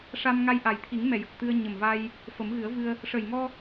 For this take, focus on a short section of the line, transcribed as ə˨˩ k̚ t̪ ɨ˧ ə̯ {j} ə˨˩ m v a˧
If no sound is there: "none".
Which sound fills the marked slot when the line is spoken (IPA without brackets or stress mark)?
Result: ɲ